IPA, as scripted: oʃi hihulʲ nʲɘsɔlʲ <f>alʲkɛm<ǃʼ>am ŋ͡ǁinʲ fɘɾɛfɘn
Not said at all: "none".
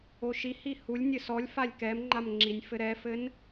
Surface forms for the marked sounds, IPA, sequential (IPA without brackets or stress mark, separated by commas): f, ŋ͡ǃ